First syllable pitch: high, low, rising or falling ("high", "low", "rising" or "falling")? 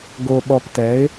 low